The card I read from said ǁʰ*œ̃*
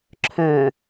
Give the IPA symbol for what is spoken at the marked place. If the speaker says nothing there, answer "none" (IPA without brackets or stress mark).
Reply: œ̃